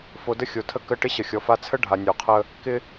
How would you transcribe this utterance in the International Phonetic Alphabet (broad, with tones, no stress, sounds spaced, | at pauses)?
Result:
f o˨ d ə˦ xʲ o˨ tʰ ə˦ k ə˦ ʈ ɪ˦ ɕ ə˨ xʲ ɔ˨ f a˦ t͡sʰ ə˦ ɖʱ a˨ nʲ o˨ qʰ ə˦ | k ɪ˦